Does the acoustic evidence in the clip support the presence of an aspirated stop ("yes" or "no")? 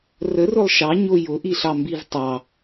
no